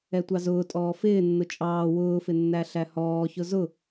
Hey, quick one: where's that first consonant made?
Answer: tongue tip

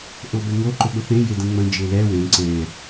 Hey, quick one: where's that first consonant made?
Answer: throat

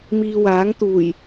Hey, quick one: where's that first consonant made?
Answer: lips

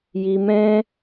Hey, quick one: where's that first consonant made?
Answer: palate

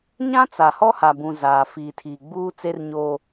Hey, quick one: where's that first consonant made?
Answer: palate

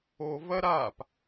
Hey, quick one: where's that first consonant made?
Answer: lips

